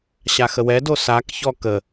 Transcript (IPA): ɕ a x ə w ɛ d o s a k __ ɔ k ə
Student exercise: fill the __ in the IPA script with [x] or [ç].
ç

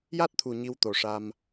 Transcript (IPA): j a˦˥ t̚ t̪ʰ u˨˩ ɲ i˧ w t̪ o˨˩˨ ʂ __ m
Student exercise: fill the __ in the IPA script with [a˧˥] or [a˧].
a˧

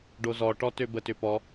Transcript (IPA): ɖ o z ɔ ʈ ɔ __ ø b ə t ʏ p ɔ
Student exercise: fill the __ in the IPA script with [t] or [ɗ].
t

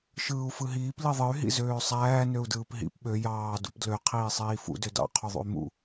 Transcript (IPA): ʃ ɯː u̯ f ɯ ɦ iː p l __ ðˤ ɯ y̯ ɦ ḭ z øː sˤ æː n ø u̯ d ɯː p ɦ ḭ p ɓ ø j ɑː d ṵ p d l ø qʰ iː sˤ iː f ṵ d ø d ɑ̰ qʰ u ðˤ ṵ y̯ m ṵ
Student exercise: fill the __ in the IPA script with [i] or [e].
i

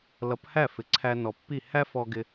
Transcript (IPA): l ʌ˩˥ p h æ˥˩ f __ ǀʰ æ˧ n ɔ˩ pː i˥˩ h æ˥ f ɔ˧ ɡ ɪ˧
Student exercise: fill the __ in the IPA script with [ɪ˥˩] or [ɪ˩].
ɪ˩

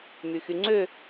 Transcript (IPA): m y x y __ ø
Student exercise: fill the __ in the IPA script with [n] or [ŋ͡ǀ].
ŋ͡ǀ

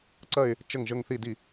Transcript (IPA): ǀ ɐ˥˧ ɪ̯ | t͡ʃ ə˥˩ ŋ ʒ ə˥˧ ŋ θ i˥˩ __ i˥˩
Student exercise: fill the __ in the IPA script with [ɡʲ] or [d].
d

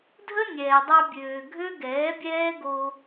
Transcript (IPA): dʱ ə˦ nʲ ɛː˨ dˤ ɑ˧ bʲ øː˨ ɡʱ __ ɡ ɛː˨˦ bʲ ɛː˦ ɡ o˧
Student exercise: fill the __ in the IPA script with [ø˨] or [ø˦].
ø˦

